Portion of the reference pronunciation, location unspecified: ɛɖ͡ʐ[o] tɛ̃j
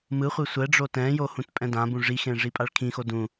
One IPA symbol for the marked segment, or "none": o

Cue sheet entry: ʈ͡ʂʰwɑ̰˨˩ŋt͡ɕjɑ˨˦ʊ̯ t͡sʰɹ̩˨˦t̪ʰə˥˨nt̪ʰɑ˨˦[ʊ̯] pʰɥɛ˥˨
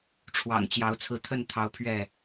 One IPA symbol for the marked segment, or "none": ʊ̯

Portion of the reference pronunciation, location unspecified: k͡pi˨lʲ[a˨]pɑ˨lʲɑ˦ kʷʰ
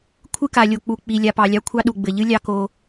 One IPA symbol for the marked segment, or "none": a˨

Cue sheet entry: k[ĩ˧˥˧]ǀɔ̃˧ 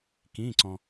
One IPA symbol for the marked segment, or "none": ĩ˧˥˧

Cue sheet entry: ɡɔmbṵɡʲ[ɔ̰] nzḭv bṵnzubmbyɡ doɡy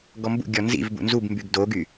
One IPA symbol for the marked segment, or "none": ɔ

